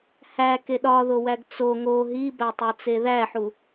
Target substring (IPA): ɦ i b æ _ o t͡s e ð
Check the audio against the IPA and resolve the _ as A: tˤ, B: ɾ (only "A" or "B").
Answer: A